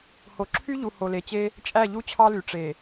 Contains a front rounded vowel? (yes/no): yes